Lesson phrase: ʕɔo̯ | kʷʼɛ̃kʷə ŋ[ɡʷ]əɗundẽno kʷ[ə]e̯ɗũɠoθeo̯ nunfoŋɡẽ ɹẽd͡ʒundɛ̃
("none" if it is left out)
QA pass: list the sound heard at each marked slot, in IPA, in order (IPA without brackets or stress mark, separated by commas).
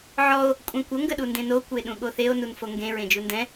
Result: ɡ, ə